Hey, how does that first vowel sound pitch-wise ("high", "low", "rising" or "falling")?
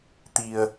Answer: low